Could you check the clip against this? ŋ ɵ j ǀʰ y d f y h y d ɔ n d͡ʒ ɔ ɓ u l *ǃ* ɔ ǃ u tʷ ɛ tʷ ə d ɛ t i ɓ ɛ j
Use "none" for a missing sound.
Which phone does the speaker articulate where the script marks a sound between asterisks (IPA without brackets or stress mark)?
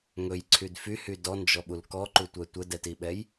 k